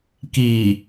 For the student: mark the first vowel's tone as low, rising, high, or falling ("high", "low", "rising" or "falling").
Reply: low